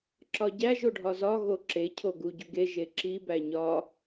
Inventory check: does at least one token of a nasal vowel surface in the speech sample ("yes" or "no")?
no